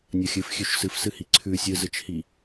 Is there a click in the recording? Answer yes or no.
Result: yes